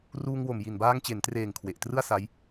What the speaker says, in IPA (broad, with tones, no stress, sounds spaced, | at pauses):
r uː˧ ŋ w o˨˩ m j i˨˩ n b aː˧ ŋ t͡ɕ e˩˦ n t r eː˨˩ ŋ kʰ w e˨˩ ʔ t r ɯ˥˩ a̯ s a˦˥ j